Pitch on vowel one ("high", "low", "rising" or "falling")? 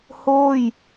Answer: falling